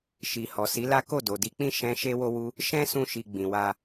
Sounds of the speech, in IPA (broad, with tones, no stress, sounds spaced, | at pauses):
ʃ i˨ h ɔ˨ s i˨˦ l a˦ k o˦˨ d o˨ d i˧ k͡p ĩ˦ ʃ ɛ̃˦ ʃ e˦ w o˦ w u˦ | ʃ ɛ̃˦ s ũ˧ ʃ i˨ ɡ͡b ĩ˨ w a˧